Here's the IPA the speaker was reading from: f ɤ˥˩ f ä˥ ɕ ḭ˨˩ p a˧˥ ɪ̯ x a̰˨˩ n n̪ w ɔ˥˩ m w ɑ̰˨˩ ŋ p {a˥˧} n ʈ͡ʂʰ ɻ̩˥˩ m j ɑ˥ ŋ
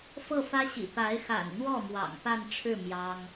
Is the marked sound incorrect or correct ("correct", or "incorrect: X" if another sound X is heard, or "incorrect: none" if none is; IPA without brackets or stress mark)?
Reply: correct